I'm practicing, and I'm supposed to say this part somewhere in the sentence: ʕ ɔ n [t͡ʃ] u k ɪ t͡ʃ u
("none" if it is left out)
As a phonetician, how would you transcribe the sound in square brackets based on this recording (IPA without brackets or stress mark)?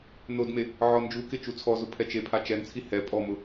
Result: d͡ʒ